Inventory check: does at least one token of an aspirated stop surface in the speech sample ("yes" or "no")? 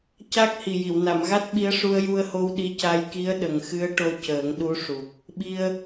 no